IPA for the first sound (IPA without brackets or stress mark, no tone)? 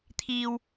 t̪ʰ